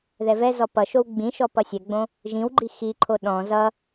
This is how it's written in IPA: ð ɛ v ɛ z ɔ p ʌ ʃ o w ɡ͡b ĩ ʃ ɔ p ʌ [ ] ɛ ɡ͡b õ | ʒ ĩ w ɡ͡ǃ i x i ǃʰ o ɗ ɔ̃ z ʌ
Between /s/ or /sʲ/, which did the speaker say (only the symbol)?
sʲ